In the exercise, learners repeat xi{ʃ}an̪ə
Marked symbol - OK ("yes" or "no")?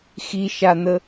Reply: yes